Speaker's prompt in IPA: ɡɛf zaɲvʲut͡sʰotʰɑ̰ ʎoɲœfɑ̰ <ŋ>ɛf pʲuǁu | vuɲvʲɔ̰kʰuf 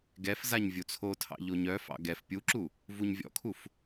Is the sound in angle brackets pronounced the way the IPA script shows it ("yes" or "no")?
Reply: no